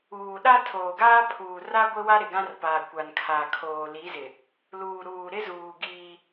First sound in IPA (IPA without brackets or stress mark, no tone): uː